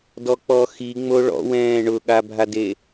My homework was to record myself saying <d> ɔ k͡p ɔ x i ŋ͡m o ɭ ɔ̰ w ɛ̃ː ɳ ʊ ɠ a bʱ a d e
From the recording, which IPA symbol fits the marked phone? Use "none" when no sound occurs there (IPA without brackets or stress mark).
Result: d